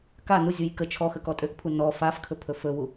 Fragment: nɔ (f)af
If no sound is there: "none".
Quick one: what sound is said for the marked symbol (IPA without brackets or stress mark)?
f